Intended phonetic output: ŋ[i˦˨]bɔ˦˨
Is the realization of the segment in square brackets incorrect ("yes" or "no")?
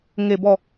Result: yes